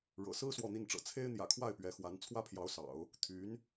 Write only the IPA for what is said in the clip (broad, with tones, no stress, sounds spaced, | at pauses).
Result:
ɻ ɤ̰˨˩ s ɹ̩˥ s w ɔ˥˧ n̪ i˥˩ n ʈ͡ʂ ɤ̰˨˩ t͡sʰ e˥ ɪ̯ n̪ j ä̰˨˩ kʰ w a˥˩ ɪ̯ p ɥ ɛ˧˥ x w a˧˥ n t͡sʰ w ä˥ pʰ j ɑ˧˥ ʊ̯ s ɑ̰˨˩˦ ʊ̯ | t̪ʰ y˧˥ n